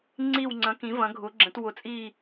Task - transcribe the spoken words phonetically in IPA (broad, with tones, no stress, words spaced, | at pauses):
ŋ͡ǀi˦˨wŋ͡ǀɐ̃˨˥ kĩ˨˥vɐ̃˨˥ɡʱʊ˨˥ɡ͡ǁə̃˨˥t wʊ˨˥t͡sʼi˦˨